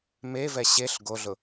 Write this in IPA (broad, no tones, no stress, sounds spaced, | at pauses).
m e v ɛ ɕ e ɬ ɡ o ɮ ʊ